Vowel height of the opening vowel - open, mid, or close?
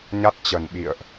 open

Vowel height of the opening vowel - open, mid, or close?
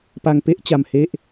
open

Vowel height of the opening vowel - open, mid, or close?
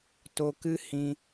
mid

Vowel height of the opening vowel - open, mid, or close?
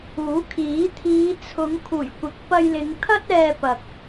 close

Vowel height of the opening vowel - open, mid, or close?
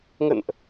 mid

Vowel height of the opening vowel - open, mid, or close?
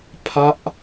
open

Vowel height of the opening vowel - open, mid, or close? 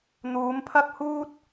close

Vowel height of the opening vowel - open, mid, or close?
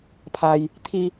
open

